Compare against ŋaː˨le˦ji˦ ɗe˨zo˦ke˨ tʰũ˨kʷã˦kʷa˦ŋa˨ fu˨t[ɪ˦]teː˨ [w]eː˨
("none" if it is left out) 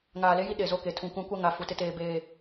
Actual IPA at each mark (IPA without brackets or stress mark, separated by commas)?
ɪ˦, b